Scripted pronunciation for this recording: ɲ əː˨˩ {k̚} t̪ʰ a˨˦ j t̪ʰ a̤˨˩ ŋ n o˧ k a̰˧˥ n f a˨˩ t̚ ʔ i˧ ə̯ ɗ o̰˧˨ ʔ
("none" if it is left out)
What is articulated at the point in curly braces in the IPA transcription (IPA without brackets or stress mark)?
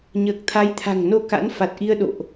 k̚